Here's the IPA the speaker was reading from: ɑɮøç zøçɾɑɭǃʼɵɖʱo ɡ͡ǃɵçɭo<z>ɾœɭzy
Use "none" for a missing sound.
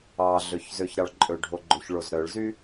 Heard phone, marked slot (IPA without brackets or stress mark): z